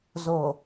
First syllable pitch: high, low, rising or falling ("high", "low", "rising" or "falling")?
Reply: low